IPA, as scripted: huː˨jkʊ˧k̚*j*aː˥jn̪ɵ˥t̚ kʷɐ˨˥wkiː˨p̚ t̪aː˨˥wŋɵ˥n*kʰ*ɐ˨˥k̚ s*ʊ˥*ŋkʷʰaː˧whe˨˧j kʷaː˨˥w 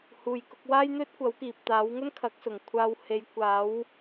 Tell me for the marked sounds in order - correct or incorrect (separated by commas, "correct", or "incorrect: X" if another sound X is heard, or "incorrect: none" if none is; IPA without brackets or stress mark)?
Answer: incorrect: w, correct, incorrect: ʊ˨˩